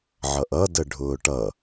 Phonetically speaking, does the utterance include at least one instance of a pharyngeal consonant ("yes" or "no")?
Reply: yes